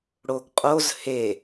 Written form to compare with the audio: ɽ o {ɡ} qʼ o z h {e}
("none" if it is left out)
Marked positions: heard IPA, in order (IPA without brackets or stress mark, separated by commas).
ɡ, e